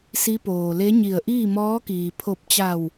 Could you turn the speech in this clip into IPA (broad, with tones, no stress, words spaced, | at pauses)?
si˧˥poː˩le˧˥ɲi˧˩ə̯ ʔiː˥˨mɔː˧˥kiː˩ pʰo˧˩p̚t͡ɕa˧˩w